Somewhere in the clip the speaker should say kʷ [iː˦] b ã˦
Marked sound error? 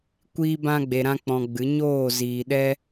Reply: no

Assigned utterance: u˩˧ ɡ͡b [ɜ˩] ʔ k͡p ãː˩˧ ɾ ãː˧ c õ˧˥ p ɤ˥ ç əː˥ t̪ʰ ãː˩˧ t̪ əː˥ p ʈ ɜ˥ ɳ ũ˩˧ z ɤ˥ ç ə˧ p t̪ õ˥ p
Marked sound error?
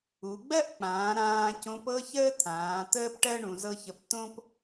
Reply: yes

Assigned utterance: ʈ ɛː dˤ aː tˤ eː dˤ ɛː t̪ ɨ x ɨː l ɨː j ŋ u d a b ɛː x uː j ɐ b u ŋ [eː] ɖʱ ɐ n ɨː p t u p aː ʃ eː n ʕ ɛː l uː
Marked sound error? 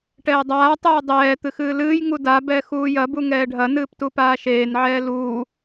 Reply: yes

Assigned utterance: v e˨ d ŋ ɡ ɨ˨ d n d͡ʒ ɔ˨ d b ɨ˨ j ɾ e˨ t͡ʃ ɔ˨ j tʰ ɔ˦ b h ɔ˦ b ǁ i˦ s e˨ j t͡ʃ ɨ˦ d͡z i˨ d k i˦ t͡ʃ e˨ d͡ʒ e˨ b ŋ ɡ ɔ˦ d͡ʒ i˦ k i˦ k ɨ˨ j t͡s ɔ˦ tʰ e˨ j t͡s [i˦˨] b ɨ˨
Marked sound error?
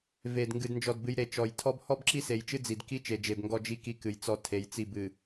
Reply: no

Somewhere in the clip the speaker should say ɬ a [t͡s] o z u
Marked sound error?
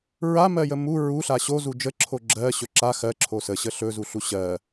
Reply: yes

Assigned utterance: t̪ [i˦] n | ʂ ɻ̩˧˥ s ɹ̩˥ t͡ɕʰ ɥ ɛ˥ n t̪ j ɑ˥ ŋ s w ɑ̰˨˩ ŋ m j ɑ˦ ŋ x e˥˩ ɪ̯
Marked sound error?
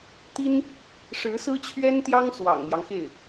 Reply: yes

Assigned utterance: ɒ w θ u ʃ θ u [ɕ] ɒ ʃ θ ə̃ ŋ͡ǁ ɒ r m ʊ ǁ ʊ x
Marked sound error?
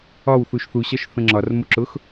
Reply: no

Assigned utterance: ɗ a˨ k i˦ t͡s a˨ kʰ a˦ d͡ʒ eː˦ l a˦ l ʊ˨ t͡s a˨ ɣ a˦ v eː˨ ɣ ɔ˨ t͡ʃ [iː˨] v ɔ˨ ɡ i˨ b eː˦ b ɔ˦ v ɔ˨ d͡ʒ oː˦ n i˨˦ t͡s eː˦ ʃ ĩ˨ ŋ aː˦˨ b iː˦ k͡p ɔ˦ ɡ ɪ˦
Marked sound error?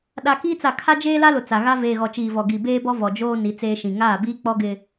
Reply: no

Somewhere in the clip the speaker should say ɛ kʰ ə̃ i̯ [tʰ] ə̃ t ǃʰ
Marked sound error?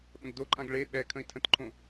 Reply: no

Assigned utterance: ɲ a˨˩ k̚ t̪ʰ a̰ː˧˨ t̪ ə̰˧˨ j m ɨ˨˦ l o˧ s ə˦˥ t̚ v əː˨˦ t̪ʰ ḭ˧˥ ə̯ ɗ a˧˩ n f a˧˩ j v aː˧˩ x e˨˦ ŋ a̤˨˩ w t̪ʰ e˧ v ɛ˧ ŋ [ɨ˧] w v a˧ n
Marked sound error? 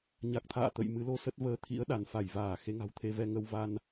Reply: yes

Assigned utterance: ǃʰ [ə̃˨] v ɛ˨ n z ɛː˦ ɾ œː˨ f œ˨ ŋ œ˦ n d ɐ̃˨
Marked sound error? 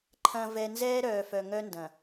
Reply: yes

